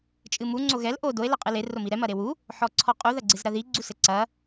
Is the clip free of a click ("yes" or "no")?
no